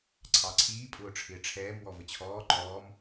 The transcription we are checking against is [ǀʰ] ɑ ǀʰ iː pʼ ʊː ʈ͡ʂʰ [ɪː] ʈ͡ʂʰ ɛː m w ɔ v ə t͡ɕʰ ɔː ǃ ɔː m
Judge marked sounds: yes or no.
yes, yes

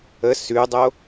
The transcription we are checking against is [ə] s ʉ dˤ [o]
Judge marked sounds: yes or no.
yes, yes

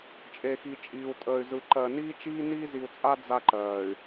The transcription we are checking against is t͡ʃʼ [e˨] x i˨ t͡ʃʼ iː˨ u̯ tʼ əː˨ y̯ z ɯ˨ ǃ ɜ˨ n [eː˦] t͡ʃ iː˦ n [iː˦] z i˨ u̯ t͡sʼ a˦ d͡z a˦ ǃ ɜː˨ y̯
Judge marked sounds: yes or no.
yes, no, yes

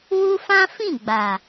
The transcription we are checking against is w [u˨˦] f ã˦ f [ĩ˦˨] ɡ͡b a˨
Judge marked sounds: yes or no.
no, yes

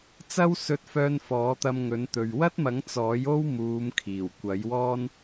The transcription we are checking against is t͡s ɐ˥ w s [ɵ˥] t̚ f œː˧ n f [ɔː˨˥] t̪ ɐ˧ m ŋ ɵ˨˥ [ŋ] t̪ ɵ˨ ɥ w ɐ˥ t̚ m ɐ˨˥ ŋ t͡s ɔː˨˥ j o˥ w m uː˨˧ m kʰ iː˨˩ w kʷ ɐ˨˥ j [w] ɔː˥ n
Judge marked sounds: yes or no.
no, yes, no, yes

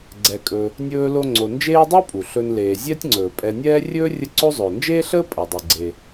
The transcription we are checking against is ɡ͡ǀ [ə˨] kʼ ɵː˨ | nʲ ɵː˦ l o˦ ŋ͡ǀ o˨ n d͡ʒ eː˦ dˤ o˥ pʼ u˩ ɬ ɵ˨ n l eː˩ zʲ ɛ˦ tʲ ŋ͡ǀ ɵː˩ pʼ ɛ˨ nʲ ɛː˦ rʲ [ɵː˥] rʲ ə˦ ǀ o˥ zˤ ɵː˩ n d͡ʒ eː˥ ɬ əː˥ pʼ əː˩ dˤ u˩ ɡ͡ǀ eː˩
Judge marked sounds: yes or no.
no, yes

